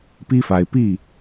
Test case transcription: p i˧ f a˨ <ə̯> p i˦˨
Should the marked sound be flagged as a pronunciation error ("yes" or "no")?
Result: yes